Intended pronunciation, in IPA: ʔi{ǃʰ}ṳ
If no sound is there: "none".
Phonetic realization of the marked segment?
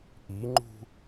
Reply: ŋ͡ǃ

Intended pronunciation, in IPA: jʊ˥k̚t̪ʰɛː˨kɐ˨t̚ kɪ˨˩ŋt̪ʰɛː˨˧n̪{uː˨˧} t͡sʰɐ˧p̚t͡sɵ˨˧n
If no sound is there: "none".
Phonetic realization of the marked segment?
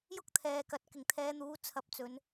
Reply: uː˨˧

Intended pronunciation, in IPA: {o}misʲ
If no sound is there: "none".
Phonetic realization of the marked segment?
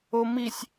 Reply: o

